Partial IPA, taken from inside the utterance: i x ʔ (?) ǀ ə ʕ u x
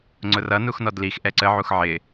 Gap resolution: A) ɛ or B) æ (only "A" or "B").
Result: A